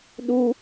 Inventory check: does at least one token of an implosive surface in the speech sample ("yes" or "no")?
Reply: yes